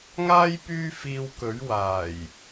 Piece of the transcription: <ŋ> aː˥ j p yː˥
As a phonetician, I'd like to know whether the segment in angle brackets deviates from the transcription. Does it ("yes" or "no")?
no